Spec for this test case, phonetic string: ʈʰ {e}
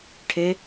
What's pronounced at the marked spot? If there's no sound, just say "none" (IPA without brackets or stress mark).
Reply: e